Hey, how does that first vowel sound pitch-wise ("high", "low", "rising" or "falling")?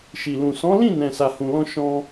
low